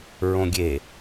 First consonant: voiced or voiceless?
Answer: voiced